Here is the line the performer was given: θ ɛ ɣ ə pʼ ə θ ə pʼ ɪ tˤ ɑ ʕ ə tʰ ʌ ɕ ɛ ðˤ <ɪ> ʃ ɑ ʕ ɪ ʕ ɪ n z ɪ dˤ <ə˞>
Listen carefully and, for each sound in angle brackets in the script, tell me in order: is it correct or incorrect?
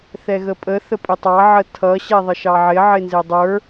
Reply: incorrect, correct

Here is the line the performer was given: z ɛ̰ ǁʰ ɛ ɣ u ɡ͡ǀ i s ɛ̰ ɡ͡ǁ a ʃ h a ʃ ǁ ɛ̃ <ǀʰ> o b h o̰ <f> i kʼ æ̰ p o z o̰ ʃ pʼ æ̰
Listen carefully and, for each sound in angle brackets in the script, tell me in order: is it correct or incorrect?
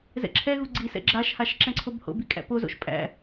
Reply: correct, incorrect

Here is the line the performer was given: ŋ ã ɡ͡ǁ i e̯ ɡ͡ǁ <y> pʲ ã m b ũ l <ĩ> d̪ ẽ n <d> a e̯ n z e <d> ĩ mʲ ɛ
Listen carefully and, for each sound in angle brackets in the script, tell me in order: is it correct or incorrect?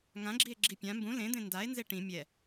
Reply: incorrect, incorrect, correct, incorrect

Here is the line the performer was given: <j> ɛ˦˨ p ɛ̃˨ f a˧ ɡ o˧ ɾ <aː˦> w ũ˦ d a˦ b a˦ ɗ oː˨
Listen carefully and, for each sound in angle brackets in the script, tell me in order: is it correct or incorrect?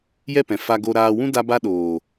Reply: correct, incorrect

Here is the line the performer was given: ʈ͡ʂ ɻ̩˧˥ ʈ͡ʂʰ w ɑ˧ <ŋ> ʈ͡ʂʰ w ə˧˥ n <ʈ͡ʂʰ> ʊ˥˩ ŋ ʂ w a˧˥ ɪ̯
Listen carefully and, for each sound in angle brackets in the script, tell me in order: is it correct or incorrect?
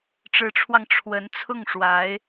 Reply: correct, incorrect

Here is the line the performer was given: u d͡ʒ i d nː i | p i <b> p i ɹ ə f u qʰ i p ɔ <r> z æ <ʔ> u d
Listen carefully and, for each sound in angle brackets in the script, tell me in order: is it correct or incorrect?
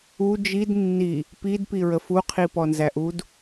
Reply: incorrect, incorrect, correct

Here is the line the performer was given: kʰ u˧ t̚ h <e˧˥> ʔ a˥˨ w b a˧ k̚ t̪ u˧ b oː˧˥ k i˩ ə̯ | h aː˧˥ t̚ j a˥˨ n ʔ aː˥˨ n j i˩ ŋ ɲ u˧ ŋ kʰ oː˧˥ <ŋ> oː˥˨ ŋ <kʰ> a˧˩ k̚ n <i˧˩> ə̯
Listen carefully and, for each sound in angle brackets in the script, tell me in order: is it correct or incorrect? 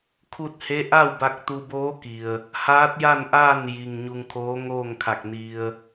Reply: correct, correct, correct, incorrect

